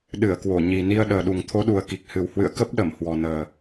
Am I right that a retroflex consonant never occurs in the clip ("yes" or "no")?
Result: yes